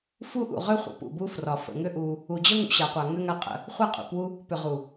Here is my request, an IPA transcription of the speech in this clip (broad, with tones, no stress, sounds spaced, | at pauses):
f u˦ ʔ ṵ˨ ʁ ʏ˦ χʷ ə̰˨ p ṵ˨ b u˦ f r ɒ˨ f ə̰˨ ŋ ʏ˦ ʔ u˧ | u˨ d͡ʑ ə˦ ŋ ṵ˨ ɕ a˨ qʷ a˨ ŋ ʏ˦ ŋ a˦ qʼ ə̰˧ | χʷ a˦ qʼ ṵ˨ p w u˦ | p ʏ˨ ʁ u˨